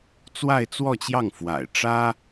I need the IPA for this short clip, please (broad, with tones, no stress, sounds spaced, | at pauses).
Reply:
t͡s w a˥˧ ɪ̯ t͡s w ɔ˥˧ t͡ɕ j ɑ˥˩ ŋ f w a̰˨˩ ɪ̯ ʈ͡ʂ ä˥